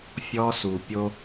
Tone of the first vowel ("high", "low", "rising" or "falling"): high